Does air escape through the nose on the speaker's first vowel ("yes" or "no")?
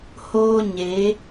no